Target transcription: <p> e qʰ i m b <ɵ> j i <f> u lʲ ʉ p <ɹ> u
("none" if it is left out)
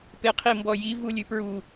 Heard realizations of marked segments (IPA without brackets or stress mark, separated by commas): p, ɔ, v, ɹ